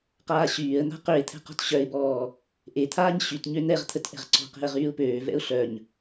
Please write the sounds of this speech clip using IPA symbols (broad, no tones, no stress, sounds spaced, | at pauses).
q aː ɕ yː ə̯ n̪ a̤ q ø ɪ̯ t̪ʰ ɛ̤ q ɔ̤ t ɕ œ ɪ̯ b ɔː | ʔ e t̪ʰ aː ɲ ɕ y t ɲ ø n̪ ɛ ʁ t̪ʰ ə t ʔ ɛ̤ ʁ ǀ ɔ̤ q e̤ ə̯ ʁ yː ʊ̯ p øː v ɛ̰ ʊ̯ ɬ œ ɲ